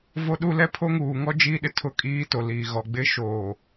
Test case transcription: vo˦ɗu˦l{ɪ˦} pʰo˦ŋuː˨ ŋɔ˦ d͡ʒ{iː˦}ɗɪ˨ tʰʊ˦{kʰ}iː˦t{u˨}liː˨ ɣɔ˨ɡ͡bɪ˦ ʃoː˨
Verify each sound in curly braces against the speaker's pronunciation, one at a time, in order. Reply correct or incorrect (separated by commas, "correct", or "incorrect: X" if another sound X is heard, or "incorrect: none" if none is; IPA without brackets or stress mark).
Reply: incorrect: ɛ˦, correct, incorrect: kʼ, incorrect: o˨